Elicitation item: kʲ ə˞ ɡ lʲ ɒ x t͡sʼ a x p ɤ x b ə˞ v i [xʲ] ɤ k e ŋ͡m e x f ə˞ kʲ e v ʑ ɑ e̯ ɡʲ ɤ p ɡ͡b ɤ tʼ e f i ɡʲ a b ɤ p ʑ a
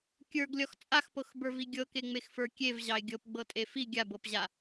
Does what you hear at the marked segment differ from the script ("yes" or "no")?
yes